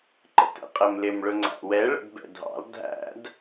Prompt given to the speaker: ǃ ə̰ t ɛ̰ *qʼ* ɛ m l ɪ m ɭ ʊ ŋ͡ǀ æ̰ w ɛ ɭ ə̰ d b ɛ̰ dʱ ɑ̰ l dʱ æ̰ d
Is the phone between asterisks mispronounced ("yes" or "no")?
no